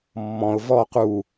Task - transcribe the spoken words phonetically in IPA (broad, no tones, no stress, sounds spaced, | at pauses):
mː ɔ̃ ʊ̯ v ɔ q u